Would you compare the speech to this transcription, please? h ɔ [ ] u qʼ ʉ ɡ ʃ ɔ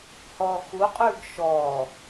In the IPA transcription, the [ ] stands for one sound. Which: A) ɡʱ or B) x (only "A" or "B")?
B